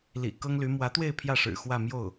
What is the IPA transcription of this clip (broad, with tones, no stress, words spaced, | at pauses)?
lḭ˨˩ kɤ˥ŋly˧˥ mwä˧˥t̪we˥˧ɪ̯ pʰjä˥˩ʂɻ̩˨˩ xwä˥˧mjo˥˩ʊ̯